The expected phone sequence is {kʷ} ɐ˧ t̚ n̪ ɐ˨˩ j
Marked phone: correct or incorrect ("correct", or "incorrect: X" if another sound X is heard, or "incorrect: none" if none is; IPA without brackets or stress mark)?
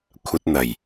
incorrect: kʷʰ